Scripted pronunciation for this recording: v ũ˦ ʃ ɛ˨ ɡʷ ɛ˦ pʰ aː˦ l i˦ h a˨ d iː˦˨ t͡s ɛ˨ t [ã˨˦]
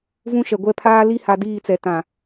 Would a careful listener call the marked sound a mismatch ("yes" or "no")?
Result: yes